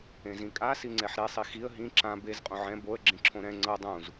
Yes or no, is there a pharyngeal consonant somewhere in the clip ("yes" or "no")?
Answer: yes